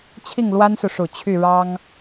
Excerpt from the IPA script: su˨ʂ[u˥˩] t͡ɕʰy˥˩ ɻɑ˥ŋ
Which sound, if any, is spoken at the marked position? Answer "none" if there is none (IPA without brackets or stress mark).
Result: u˨˩